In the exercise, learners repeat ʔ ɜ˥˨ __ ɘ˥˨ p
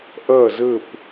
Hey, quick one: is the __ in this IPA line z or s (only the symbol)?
z